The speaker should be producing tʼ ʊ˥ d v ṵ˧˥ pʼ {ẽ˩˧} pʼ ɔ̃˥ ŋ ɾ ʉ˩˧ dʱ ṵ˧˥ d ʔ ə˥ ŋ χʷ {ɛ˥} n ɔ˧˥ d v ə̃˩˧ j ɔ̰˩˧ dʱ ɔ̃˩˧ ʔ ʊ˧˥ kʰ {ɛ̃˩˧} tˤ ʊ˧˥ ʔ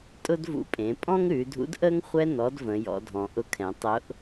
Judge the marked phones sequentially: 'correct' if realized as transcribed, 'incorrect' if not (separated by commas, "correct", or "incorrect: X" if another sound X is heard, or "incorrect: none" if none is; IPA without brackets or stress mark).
correct, correct, correct